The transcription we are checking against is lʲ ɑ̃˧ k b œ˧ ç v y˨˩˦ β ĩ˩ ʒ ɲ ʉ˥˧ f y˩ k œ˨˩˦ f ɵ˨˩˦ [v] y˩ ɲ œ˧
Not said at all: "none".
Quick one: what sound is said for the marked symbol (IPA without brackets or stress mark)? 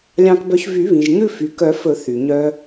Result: θ